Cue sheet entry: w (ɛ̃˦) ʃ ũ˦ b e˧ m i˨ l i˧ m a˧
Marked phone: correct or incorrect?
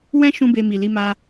correct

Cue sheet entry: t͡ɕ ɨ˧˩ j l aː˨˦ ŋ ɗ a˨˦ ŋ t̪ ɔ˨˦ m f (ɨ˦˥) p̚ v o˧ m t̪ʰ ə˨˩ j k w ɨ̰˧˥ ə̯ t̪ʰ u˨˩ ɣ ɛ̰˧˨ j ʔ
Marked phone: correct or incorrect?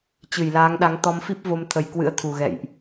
incorrect: i˦˥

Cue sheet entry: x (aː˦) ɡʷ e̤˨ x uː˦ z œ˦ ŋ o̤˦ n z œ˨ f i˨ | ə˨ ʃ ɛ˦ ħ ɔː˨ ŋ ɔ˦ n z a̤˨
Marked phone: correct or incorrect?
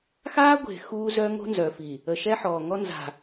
correct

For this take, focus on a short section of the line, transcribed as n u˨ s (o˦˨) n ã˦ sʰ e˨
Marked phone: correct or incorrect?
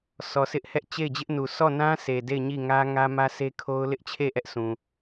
incorrect: ɔ˦˨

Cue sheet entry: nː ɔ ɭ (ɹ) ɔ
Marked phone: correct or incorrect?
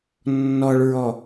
correct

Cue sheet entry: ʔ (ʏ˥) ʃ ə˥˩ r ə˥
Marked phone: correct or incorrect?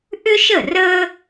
correct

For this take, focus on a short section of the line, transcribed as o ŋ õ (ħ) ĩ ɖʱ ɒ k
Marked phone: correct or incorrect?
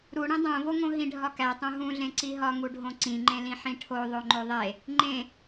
incorrect: ɦ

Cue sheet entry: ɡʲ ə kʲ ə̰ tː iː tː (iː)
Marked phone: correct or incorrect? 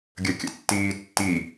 incorrect: i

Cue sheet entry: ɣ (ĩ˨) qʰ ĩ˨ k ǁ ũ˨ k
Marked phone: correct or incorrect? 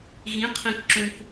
incorrect: ĩ˨˦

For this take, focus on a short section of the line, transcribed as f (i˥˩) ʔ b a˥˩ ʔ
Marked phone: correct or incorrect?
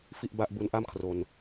correct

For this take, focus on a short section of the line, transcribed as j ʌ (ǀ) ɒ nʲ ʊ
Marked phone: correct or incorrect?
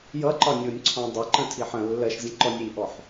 incorrect: ǃ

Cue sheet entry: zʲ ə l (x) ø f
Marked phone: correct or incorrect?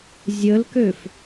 incorrect: k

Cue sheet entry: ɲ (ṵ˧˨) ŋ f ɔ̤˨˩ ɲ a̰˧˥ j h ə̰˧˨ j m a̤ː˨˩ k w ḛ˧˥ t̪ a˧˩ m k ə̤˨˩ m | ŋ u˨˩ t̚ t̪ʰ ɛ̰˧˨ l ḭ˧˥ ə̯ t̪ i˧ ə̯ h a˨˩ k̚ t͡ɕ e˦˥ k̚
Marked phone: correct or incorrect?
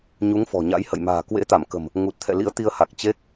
incorrect: u˨˦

